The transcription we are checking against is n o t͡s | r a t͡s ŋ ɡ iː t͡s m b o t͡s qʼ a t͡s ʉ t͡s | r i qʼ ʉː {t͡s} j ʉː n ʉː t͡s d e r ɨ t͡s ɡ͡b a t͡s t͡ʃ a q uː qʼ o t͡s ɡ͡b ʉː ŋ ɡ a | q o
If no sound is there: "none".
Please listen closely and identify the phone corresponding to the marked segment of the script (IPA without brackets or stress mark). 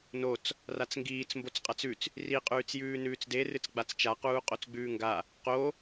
t͡s